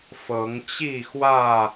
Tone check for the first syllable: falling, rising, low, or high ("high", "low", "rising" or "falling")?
rising